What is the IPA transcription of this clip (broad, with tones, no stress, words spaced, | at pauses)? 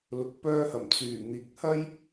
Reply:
lʊ˨k̚pœː˧hɐ˨˩m t͡syː˨˩n̪iː˨˥k̚hɐ˥j